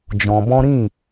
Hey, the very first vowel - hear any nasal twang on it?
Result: yes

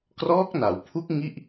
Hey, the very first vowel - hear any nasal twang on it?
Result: no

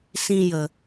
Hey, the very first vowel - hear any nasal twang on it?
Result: yes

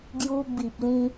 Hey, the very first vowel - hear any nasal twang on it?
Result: no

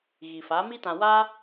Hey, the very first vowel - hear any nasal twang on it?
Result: no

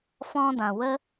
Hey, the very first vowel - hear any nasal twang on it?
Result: yes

